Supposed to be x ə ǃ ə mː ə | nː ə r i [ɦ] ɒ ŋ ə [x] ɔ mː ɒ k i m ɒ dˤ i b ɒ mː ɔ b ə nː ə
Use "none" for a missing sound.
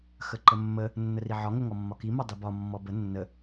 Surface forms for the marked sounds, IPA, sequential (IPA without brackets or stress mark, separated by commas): ʕ, ŋ